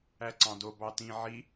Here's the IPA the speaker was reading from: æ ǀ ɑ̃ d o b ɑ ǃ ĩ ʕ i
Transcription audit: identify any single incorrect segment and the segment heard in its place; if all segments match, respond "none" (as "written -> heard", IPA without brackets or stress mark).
ǃ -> t